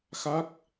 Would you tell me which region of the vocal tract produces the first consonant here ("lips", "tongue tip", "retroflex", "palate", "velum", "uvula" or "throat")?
velum